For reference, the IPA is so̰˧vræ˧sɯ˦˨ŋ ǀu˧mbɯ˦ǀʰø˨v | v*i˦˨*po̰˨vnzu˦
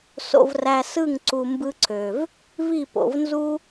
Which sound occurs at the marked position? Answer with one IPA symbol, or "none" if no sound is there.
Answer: i˦˨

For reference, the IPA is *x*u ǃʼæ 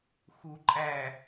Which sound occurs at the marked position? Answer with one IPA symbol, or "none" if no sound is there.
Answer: x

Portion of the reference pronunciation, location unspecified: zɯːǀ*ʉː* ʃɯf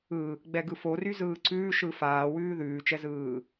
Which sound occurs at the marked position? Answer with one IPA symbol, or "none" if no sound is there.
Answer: ʉː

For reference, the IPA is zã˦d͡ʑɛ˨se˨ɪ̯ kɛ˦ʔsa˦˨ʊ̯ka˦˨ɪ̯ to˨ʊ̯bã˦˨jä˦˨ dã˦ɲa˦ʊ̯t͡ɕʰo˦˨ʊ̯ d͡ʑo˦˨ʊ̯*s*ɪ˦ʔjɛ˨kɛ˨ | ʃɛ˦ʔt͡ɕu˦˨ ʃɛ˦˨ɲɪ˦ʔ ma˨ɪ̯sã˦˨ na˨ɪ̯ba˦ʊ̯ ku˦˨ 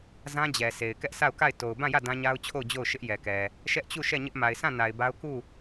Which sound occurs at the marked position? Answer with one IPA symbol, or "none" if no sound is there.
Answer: ʃ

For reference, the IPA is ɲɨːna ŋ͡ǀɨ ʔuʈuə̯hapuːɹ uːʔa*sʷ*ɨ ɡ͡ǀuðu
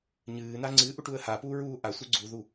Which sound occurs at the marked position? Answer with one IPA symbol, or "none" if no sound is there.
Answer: sʷ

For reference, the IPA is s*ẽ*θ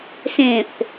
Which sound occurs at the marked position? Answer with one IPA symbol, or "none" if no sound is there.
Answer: ẽ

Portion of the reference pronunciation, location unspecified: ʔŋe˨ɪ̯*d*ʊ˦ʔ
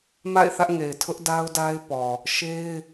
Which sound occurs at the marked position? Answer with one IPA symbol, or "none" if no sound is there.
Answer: tʰ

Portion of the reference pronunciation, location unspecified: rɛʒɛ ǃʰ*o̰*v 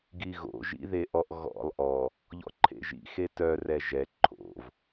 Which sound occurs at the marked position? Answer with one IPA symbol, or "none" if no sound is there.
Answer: o̰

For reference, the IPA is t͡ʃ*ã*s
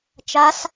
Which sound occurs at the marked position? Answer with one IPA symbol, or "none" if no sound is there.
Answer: a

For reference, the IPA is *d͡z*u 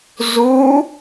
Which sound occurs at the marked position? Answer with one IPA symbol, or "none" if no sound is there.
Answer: z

